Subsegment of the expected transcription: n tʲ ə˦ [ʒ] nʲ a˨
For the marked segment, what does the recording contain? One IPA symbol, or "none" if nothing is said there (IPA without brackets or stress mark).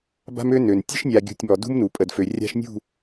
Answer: ʃ